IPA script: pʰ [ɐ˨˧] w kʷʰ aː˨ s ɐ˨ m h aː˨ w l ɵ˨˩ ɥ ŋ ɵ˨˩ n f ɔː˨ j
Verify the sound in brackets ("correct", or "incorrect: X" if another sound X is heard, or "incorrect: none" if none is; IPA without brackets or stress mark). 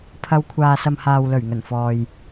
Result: correct